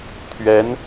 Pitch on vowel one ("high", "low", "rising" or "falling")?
rising